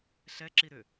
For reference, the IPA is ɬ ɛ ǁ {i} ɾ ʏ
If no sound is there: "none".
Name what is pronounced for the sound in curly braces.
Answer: i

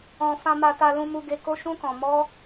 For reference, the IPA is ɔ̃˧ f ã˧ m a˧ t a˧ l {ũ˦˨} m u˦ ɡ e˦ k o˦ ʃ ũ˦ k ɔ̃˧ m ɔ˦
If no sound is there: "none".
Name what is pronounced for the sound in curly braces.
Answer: ũ˦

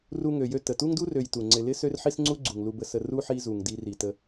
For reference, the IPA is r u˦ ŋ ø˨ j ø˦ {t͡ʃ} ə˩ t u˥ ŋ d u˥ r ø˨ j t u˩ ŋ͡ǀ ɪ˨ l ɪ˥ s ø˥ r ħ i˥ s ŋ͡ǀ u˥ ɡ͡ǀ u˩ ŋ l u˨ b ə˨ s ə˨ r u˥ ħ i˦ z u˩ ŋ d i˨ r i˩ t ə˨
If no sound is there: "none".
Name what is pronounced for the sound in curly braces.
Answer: t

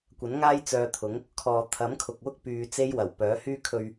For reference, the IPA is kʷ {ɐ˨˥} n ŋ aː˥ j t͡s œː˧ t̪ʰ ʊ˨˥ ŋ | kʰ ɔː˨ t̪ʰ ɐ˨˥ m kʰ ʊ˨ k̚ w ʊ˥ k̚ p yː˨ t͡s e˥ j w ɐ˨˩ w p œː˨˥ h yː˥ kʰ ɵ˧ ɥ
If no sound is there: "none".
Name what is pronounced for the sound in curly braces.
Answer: ɐ˨˥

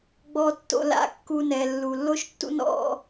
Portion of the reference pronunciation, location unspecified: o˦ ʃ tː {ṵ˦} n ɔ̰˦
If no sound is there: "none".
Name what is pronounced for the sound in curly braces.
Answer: ṵ˦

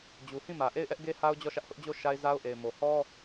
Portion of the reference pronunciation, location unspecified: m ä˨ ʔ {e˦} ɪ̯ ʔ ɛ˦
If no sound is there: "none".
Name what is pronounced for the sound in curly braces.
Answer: e˦˨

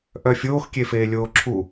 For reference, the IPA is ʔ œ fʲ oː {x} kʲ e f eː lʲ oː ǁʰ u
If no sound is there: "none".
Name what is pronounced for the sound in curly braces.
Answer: x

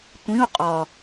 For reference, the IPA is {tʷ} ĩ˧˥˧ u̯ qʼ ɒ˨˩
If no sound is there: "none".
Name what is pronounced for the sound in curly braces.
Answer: tʷ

